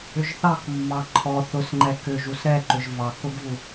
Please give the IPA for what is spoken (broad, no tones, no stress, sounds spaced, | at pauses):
ʏ ʒ θ ɑ k mː ɑ ǃʰ ɔ θ ʊ s ŋ͡ǃ ɛ k ʏ ʒ u s ɾ ɛ ǃ ʏ ʒ v ɑ k ʊ ɡ v u